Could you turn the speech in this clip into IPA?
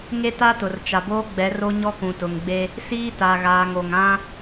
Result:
ŋ e˦ t a˦ t ʊ˨ r t͡ʃ a˨ b oː˦ ɡ͡b ɛ˨˦ r o˦ ɲ ɔ˦ k ũ˨ t ʊ˨ ŋ ɡ͡b e˦ | s iː˦ t a˨ ɣ aː˨ ŋ o˨ ŋ ã˦

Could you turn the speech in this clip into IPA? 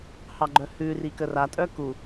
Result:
h ɑ ɡ͡ǃ œ h ʉ r i k ə r a tʼ œ k u

